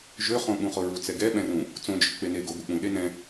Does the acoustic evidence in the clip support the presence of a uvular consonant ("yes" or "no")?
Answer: yes